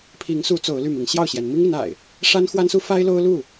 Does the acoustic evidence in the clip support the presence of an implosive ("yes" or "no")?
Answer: no